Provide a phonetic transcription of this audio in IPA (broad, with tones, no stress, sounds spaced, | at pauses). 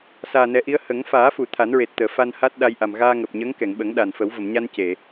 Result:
s aː˨˩ n ɛ˨˩˦ ʔ i˧˥ ə̯ h ə˨˩˦ ŋ f aː˨˩˦ f u˨˩˨ t̪ʰ a˨˩˦ n ɹ e˨˩ t̚ t̪ əː˨˩˨ f a˧ n h a˦˥ t̚ ɗ a˧ j ʔ a˨˩ m ɣ aː˧ ŋ əː˨˩ p̚ ɲ əː˧˥ ŋ k ɛ˨˩˨ ŋ ɓ ə˨˩˦ ŋ ɗ a˨˩ n f ə˨˩˦ w v ə˨˩˨ m ɲ a˧ n c e˨˩˨